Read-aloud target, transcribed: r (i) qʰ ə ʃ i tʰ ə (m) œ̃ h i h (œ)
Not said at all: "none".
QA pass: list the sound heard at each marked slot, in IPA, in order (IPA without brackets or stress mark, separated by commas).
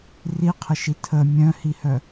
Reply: i, mʲ, œ